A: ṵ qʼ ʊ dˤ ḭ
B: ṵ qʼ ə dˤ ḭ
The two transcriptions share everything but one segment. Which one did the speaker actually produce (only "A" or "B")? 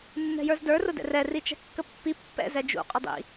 A